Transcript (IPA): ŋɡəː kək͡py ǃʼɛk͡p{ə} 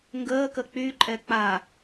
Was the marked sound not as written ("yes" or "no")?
yes